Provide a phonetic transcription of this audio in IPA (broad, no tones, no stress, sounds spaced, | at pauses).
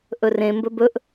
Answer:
ʔ ɵ r ẽ m b ɵ b ɵ ʔ